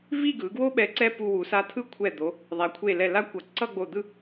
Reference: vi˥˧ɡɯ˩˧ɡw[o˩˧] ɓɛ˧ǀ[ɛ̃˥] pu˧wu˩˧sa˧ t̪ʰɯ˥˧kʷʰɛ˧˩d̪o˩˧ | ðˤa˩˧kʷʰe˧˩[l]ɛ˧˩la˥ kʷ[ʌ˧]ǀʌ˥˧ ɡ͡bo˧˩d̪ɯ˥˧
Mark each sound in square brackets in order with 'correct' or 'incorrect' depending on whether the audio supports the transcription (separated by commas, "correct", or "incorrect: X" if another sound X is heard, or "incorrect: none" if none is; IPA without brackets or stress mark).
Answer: incorrect: o˥, incorrect: ɛ˥, correct, incorrect: ʌ˩˧